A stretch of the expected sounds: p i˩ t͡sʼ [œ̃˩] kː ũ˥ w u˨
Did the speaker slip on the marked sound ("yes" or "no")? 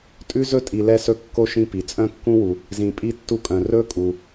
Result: yes